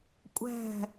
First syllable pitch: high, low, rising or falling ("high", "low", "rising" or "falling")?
falling